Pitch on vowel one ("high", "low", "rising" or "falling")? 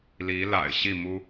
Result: rising